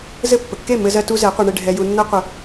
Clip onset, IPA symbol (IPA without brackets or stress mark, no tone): z